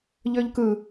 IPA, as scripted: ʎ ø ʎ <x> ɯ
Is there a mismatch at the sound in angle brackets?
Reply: yes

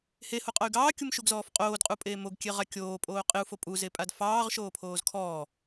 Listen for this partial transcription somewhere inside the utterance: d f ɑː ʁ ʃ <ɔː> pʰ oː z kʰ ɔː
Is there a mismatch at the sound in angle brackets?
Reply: yes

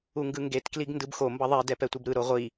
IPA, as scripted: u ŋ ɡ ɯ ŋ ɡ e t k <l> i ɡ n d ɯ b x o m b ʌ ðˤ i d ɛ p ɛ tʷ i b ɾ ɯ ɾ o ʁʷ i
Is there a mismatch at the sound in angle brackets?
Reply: no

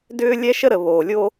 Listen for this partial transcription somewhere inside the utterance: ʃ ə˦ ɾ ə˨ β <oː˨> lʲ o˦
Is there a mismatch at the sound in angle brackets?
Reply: no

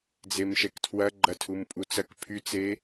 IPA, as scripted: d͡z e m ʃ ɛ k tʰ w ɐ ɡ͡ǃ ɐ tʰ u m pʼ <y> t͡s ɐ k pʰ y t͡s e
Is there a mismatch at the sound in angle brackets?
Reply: yes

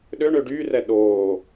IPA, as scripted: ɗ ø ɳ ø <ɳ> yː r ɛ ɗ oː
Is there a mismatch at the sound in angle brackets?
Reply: yes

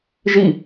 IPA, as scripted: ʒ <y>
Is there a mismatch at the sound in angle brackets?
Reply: yes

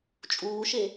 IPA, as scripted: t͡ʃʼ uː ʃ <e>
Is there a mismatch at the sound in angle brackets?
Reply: no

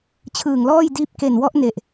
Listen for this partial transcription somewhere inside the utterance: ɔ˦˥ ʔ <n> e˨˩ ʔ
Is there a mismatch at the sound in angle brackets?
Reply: no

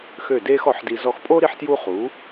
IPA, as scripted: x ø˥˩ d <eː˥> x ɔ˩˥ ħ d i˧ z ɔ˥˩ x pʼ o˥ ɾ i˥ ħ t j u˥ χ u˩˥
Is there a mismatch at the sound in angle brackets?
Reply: no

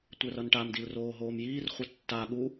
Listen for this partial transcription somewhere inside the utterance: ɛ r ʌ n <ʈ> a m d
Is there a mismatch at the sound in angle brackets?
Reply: no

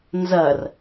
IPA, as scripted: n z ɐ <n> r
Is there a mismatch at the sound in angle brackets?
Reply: yes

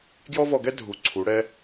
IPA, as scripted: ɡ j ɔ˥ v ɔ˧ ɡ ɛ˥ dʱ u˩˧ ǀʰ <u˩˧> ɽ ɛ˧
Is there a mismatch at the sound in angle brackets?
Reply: no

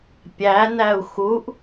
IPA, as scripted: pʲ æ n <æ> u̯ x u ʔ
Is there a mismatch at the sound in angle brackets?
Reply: no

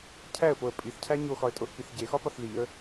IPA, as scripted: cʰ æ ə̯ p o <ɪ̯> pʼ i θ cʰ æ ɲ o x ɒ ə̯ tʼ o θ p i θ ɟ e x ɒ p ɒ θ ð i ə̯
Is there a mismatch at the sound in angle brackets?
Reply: yes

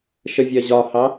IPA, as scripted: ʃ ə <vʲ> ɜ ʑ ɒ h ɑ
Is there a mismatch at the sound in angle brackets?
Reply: no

